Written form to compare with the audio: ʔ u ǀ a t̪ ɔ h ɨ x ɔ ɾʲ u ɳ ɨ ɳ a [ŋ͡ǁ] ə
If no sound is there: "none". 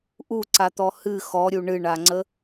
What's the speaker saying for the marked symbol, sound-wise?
ŋ͡ǀ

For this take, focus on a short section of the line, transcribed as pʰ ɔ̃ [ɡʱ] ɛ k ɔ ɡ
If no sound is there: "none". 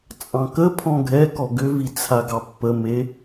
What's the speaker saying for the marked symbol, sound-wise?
ɡʱ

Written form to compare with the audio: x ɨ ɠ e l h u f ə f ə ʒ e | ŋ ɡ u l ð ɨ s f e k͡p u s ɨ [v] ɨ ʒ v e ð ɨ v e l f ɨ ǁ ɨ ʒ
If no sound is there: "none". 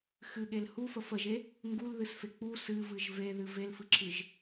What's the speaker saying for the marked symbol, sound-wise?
v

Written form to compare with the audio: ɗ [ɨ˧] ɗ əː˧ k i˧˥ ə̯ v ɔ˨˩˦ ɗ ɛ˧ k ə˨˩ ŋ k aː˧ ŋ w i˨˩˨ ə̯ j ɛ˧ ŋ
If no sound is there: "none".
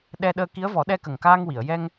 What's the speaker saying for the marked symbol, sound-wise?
ɛ˧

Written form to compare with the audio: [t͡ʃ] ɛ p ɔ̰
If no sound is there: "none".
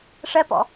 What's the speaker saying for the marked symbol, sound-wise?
ʂ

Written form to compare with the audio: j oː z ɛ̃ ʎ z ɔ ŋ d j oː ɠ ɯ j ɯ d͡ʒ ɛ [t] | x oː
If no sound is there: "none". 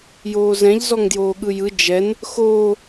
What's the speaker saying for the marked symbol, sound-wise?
n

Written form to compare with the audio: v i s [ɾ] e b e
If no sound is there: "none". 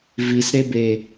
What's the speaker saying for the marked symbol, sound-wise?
ɾ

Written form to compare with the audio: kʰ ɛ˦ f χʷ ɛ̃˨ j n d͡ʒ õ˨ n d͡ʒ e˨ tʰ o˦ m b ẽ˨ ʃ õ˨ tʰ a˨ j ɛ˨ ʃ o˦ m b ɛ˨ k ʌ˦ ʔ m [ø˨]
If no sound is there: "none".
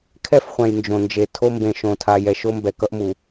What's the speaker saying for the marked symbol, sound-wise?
u˨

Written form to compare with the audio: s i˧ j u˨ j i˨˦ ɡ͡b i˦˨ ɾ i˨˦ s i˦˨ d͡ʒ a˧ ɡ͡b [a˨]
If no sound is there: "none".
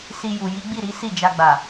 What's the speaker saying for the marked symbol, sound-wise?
a˨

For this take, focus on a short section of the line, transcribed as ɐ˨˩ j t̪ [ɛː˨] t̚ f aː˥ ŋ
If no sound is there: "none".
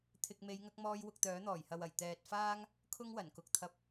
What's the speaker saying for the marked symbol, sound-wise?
ɛː˨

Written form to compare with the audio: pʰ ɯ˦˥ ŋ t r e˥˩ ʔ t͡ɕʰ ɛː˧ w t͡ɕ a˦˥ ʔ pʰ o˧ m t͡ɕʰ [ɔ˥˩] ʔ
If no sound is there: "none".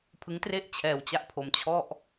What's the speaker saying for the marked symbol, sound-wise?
ɔ˥˩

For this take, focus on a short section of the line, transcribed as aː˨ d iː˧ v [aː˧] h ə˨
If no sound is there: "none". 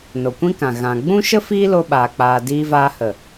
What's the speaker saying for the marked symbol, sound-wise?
aː˧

